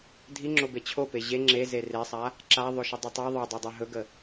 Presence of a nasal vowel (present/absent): absent